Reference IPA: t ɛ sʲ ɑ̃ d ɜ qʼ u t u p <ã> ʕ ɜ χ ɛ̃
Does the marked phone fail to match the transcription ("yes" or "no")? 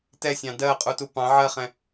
yes